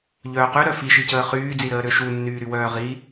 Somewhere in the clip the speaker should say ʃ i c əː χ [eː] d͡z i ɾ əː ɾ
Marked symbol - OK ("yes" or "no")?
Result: no